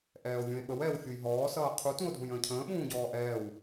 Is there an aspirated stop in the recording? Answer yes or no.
yes